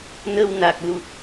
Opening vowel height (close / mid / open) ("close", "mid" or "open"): mid